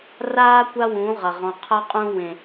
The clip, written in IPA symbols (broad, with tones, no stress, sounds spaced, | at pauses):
r aː˦ kʷ a˦ w ũ˨˦ ʁ ɐ˨ ʁ ɔ̃˨ qʰ ɐ˦ qʼ ũ˦ w ẽ˦